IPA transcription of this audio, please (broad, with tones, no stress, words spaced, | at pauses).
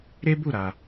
ɾe˦bu˦˨ ɾa˧